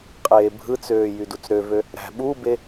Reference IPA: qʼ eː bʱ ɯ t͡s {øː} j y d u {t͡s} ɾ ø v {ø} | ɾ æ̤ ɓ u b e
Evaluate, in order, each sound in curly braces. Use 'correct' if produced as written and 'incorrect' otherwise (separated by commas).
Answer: correct, correct, correct